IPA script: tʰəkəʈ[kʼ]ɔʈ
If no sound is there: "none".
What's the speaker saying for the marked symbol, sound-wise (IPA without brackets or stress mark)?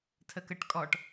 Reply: kʼ